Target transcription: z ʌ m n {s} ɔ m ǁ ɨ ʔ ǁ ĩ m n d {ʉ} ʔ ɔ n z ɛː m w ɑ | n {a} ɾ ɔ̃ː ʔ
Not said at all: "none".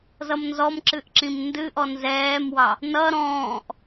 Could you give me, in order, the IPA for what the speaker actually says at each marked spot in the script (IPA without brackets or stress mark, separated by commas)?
z, ɨ, ʌ